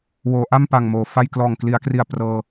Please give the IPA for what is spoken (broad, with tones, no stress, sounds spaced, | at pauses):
w oː˩˦ ʔ a˥˩ m p a˨˩ ŋ m oː˨˩ f a˥˩ j k l ɔː˨˩ ŋ k l i˩˦ a̯ k r i˨˩ a̯ p r ɤː˧